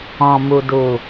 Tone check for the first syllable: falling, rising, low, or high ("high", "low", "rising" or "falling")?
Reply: low